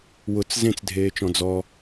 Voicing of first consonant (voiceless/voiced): voiced